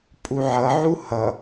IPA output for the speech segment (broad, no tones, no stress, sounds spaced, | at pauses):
pʼ u ʕ ʌ ʕ u h ʌ